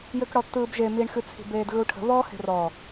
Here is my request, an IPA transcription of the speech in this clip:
j ø k ɽ ɔ tː ɯː b ʒ e m i ɳ x ɨ t͡sʰ i̤ b eː d ɣ ɯ u̯ ʈʰ ə̤ β ɔ h e̤ r ɔ

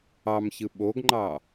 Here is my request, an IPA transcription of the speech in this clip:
ɑ m ç ɯ ɓ o ɡ ŋ͡ǃ ɑ

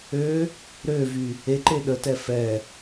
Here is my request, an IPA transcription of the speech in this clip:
ø | ɾ ø v y | e ǃ e ɗ ə t ɛ f ɛ

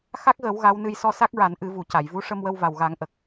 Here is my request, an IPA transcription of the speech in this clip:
x a˦˥ k̚ ɣ ə˨˩˦ w ɣ a˧˥ w n ɨ˧ j s ɔ˧ s a˦˥ k̚ ɹ a˨˩˦ n ʔ ɨ˨˩˦ v u˨˩˨ c a˨˩˨ j v u˧˥ ʂ ə˧ m w ə˧ w v a˨˩ w ɣ a˨˩˦ ŋ ʔ ə˨˩ k̚

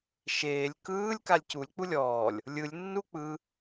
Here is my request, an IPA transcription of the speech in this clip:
ʃ eː lʲ k ɯː lʲ k a lʲ c u lʲ k͡p u lʲ ɔː lʲ | lʲ ɯ lʲ nː u k͡p ɯ

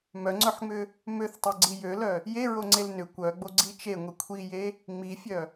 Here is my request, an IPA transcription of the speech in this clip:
m œ ŋ͡ǀ œ ħ ŋ͡m ʏ | m ø θ tˤ ø ɡ͡ǀ i j ø l œ | j e ɹ o ŋ͡ǀ e l n ʏ kʷ œ ɡ͡b o ɡ͡ǀ i t͡ʃ e ŋʷ i kʷʰ i j e | ŋ͡m i fʲ œ

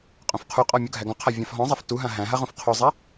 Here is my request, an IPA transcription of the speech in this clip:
qʼ õ f qʰ u qʼ ɔ mʲ u ɡʱ æ ɡ ɔ̃ qʰ a vʲ ã f ɦ ɔ̃ zˤ a f t u ɦ ã ɦ æ̃ ɦ a ʁ õ f qʰ o zˤ æ

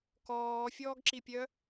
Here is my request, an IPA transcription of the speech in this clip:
k ɔː fʲ ɔː ɡ ǁ i pʲ œ

